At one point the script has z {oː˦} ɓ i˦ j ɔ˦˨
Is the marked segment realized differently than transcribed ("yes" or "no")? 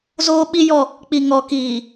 no